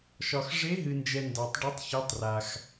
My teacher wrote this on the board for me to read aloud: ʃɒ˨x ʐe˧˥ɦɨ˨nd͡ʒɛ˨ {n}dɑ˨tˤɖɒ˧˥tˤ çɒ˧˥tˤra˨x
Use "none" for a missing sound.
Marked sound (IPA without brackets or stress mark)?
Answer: n